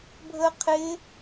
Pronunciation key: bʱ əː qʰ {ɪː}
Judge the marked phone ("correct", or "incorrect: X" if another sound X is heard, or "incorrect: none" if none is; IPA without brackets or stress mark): correct